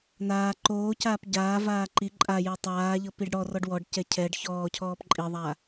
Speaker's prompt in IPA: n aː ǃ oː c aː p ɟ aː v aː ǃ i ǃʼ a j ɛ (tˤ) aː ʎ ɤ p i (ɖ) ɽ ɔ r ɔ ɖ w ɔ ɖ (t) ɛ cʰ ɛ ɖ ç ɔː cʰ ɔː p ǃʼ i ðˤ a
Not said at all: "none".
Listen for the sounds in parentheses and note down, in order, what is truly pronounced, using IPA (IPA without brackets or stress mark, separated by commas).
tˤ, ɖ, c